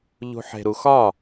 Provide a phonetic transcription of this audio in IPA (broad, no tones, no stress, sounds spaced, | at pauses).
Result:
ʎ ṳ ħ e̤ ɾ u x ɒ